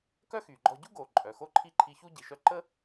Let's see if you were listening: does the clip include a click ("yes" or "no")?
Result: yes